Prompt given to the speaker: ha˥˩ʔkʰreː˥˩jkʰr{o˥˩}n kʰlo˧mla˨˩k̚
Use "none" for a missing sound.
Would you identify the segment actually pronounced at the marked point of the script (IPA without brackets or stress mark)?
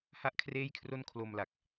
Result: o˥˩